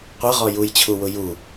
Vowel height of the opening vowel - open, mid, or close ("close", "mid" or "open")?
mid